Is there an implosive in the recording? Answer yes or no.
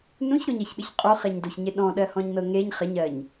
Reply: yes